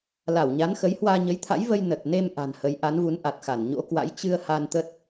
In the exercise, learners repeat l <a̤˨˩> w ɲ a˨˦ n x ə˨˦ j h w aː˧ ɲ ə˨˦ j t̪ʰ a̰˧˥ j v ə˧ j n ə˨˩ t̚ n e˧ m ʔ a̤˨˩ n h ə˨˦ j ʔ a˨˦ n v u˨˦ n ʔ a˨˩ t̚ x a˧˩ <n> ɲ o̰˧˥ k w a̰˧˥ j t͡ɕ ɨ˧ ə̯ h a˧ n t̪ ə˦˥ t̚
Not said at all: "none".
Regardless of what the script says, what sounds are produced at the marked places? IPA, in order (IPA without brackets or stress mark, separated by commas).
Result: a˧˩, n